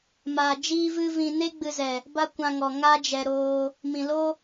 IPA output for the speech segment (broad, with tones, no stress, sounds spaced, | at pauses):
m aː˧ d͡ʒ iː˦ v ɨ˦ v ĩ˧ n e˦ ɡ͡b ɨ˧ z ɛ˨ | b a˦ kʷ ã˧ ŋ ɔ˨ ŋ a˦ d͡ʒ ɛ˧ ɾ oː˧ | m ĩ˨ l o˦